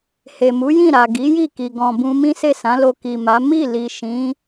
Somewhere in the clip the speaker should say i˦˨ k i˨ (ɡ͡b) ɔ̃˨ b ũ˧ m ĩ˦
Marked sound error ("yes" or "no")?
yes